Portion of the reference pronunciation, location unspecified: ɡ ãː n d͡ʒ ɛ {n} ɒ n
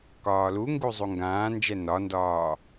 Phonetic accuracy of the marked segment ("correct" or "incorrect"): correct